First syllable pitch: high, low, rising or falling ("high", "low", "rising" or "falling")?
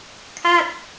falling